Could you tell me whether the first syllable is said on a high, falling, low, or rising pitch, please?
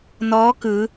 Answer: rising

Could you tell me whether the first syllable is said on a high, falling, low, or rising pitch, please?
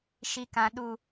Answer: low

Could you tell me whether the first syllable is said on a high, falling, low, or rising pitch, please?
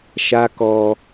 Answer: high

